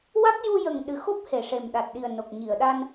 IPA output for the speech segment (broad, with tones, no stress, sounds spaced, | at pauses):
w a˦˥ k̚ j u˧ j ə˨˩ ŋ ɗ ɨ˨˩ x o˦˥ p̚ h e˨˩ ʂ e˨˩ m ɗ a˨˩ t̚ ɗ i˨˩ ə̯ n o˨˩ k̚ ɲ i˨˩˨ ə̯ ɗ a˧ n